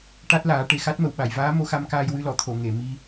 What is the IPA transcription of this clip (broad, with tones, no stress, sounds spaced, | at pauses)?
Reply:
ʈ a˦˥ t̚ l aː˨˩˦ ʈ e˨˩ x a˦˥ t̚ m ə˨˩˨ w ɓ a˨˩˨ j v aː˧˥ m o˧ x a˧ m k aː˧ j w ɨ˧ l ɔ˨˩˨ t̪ʰ o˨˩˨ ŋ e˨˩˨ m i˧